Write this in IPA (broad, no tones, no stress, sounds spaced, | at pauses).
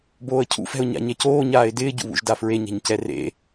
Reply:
b oː ə̯ cʰ ṵ f ɛ̤ ʊ̯ ɲ a̰ ɲ ɛ c oː ɲ aː ɪ̯ d ɪː ɟ ṵ β ṵ ʒ d a f ɹ e ɲ ɛ̤ ɲ c ɛ r ḛ